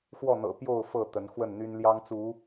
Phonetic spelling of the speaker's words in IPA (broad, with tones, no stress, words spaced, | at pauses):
xwɔ˥˨n̪ɤ̰˨˩ pjo˥˨ʊ̯ fɤ˥˨ t̪ə˨˦n xwə˥˨nn̪y˦n ljɑ˦ŋt͡su˨˦